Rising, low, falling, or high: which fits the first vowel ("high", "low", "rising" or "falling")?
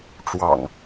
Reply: low